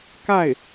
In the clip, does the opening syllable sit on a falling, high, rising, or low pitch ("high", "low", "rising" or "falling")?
falling